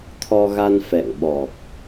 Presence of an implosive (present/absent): present